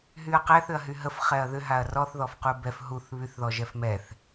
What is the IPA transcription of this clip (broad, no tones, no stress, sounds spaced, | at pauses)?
ɦ y ɐ̯ q ɛ θ ʏ ɐ̯ ɦ y ɦ ə f χ ɛ ɐ̯ ð ʏ ɦ a ɐ̯ r ɔ θ ð ɔ f q u b ɛ f ɦ u θ β y θ ð ɔ ʒ ɛ f m ɛ θ